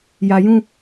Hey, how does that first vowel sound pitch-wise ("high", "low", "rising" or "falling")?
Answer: low